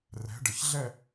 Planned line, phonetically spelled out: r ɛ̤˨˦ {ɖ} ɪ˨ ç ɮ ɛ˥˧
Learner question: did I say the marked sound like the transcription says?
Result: yes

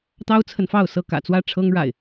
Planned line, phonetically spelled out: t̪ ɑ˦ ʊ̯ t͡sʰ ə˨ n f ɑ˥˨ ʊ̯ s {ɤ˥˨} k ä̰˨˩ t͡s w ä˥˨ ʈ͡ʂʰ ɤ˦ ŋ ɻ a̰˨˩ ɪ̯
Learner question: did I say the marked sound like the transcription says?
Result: yes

